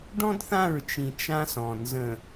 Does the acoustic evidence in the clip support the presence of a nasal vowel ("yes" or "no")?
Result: yes